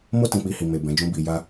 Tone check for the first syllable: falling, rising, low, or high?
high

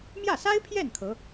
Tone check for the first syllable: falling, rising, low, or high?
falling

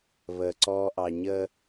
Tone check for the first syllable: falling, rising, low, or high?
low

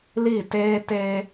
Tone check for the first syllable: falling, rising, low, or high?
falling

